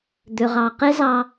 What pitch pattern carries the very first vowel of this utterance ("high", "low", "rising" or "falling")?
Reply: low